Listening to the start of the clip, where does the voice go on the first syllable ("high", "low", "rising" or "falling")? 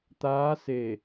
rising